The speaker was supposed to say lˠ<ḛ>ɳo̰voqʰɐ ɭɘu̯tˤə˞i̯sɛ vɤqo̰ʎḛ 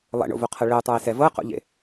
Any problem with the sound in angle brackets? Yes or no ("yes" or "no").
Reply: yes